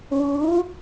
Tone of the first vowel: rising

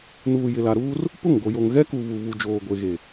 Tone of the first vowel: low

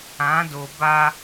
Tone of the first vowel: rising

